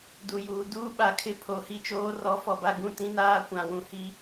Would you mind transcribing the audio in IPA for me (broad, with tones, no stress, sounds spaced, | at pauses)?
d u˨ j uː˨ d uː˦ ɓ a˨ kʰ ɪ˦˨ pʰ o˨ h i˦ t͡ʃ oː˦ r ɔ˨˦ f ɔ˨ b a˦ ɡ ũ˦ t ĩ˦ n aː˦ kʷ ã˨ w ũ˨ h i˦